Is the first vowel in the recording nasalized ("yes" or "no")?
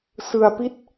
no